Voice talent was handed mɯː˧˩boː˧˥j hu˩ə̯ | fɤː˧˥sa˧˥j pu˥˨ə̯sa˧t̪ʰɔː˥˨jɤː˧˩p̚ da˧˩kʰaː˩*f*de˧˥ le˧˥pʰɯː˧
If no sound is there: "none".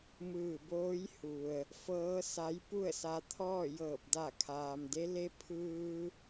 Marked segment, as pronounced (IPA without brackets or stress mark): m